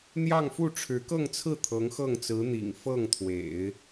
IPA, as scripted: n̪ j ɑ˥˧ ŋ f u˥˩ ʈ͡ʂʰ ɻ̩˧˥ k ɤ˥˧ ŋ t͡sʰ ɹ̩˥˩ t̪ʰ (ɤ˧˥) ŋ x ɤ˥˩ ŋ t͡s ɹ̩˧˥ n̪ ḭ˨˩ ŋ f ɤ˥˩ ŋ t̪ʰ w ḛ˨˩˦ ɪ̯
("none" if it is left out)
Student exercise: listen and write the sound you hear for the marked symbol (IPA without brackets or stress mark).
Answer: ɤ˧˥